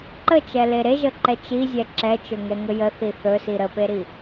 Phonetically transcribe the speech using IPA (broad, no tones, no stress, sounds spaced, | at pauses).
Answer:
ǃ ə t͡ʃ ɛ l e ɾ e ʒ ə ǃ ɛ t͡ʃ i zʲ ɛ ǁ ɛ t͡ʃ ɵ ŋ ɛ ŋ ə j ə θ i θ ɵ s i ɾ ə p e ɾ i